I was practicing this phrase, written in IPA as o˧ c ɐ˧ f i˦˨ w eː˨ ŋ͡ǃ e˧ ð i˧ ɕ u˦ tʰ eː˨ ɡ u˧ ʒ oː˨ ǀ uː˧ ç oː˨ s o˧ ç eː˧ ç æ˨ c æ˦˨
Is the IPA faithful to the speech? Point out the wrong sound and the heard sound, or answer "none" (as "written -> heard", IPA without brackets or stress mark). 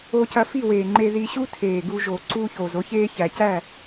s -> z